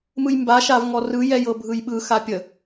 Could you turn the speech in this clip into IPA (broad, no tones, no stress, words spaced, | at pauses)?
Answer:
mɯjmba ʃavŋɔrɯ jɛjɤbʱɯjɓɯ xapʲə